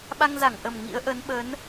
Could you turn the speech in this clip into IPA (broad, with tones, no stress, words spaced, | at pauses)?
ɓa˧ŋza˧˩ŋʔə˨˩m ŋḭ˧˥ə̯ʔə˨˦n ɓə˨˦n